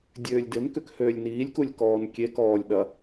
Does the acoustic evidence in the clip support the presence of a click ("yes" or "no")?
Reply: no